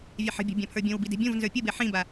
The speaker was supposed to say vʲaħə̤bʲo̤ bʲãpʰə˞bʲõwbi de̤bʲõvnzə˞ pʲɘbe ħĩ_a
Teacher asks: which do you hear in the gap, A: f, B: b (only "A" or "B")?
B